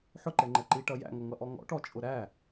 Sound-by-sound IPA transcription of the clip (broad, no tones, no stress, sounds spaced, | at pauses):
ħ ʊ ǃ ɛ ŋ͡ǃ ɛ ǃ i ʈ ʌ j æ̰ ŋ ʌ ŋ ʌ ʔ ɔ ŋ ɔ̰ ʈ ɔ t͡ʃʼ ʊ ɾ æ